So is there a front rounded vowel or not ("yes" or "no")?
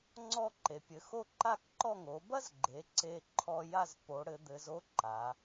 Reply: no